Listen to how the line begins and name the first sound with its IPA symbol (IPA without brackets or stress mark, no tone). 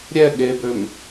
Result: ɾʲ